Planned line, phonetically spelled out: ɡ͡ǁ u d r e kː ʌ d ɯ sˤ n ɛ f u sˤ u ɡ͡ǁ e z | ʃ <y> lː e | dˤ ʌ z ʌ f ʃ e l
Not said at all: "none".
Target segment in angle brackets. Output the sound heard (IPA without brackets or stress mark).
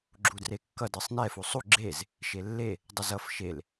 e